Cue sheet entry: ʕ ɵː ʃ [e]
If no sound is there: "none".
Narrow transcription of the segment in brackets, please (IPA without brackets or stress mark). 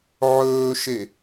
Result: e